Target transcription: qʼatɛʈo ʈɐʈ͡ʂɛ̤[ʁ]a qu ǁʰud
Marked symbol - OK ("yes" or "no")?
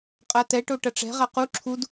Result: yes